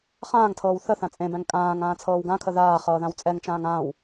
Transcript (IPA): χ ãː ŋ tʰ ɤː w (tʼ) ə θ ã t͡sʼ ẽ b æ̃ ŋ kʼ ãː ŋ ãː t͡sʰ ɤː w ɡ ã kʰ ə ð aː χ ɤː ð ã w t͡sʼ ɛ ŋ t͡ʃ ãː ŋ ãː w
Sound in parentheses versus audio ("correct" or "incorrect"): incorrect